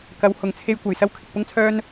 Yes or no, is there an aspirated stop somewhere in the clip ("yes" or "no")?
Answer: yes